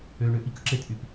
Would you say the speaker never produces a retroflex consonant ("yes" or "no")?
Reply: no